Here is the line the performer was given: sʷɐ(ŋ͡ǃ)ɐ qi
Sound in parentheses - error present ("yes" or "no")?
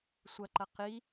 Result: yes